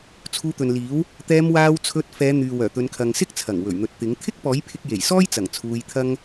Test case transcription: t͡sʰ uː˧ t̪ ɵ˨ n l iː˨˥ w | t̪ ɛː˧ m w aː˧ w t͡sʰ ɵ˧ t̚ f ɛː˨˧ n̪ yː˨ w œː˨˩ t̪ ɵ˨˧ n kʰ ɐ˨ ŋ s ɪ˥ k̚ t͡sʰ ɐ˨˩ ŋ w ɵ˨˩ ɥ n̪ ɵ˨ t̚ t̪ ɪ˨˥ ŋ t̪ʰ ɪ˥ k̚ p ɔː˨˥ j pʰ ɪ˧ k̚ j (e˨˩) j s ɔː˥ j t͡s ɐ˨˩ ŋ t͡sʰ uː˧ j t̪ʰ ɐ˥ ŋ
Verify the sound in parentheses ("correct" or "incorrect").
correct